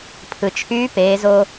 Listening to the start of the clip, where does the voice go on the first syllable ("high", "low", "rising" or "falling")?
low